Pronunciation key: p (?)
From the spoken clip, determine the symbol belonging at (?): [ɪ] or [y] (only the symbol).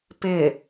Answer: ɪ